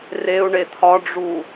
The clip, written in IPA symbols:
r e u̯ ɳ e t̪ʰ ɒ ɖ͡ʐ u

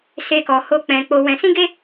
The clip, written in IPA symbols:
s e˦ k ɔ˧ h o˦ k͡p ɛ̃˧ k͡p o˧ w ɛ̃˧ s ĩ˦ ɡ e˦

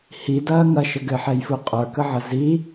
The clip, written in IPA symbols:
h i d ɐː ŋ ɐ ʃ ə ɡ ɘ ħ ɛ j f u qʼ ə˞ k ə ʕ ɐ z i

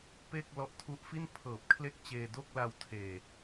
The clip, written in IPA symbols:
p e˥˩ k̚ l ɔ˦˥ ʔ tʰ u˦˥ ʔ f i˥˩ n pʰ ɤː˨˩ p̚ kʰ l e˥˩ k̚ t͡ɕ eː˧ d o˥˩ k̚ l a˧ w tʰ eː˨˩

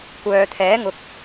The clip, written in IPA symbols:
kʷ œː˨ t̪ʰ ɛː˨˥ ŋ ʊ˨˥ k̚

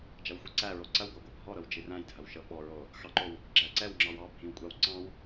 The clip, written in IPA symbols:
d͡ʒ ɐ w xʷ i ǀ æ ɹ o ǀ ɐ w ɡʷ ɑ ɡʷ æ bʱ ɔ ɾ ɤ w d͡ʒ i r æ̃ j dʱ ɐ w ʃ ɤ ɓ ɔ ɹ o | x ɑ ǃ o w | ɡ͡ǁ æ ǀ ɛ w ŋ͡ǁ ɑ w ɑ bʱ ĩ w kʷʼ ɑ w ǀ ɑ̃ w

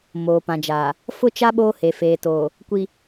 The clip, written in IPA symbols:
m oː˨ p ã˨ d͡ʒ aː˨ | f ʊ˦ t͡ʃ a˦ ɓ oː˦ h e˨ f eː˨ t oː˨ | kʷ i˨

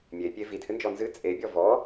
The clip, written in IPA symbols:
mʲ e pʲ e v i d h ɨ n d͡ʒ ɔ n z ɨ t͡sʼ e bʲ ɔ v ɔ

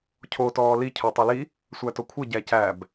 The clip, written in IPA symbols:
cʰ o t ɔː l i cʰ o tˤ ɛ l i | sʷ æ t o kʷʰ ə ɟ æ c æ b

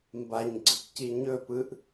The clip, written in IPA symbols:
m b a ɲ ɡ͡ǀ ɯ k c i ɲ ɵ p ɯ ʔ

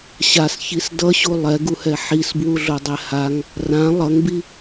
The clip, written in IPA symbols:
ɕ a s ç i s d ʌ ɕ u lˠ ɛ ɡ u h ɛ ħ i s b w u ɮ o dˤ ɛ h a ŋ | r ã lˠ ʌ ŋ b i

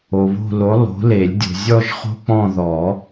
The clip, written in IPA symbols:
o˨ β o̤˦˨ l o˨˥ lˠ o̤˨˥ l e˨˩˦ lʲ dʲ o̤˨ zʲ ɔ˦˨ ʒ χ o̤˦ k͡p ɔ̃˦˨ ð ɔ˨˩˦

